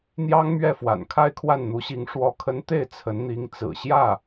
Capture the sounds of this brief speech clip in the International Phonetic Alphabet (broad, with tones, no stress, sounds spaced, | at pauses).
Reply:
n̪ j ɑ˥ ŋ m ɥ ɛ˥˩ f w a̰˨˩ n kʰ a˥˧ ɪ̯ kʰ w a˥˩ n n̪ u˧˥ ɕ i˧˥ ŋ ʂ w ɔ˧˥ kʰ ə˧˥ n t̪ e˥˩ ɪ̯ t͡sʰ ə˧˥ n n̪ i˧˥ ŋ t͡s ɹ̩˨˩ ɕ j ä˥˩